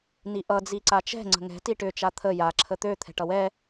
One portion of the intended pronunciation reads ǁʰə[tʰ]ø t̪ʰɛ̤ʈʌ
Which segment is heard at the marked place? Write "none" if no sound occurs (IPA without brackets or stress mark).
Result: t̪